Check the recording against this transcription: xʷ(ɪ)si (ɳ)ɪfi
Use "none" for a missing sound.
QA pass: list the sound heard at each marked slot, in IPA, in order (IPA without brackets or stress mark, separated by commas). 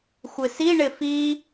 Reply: ɪ, ɳ